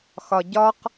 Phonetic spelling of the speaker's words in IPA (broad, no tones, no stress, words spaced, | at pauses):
xɒɟɒq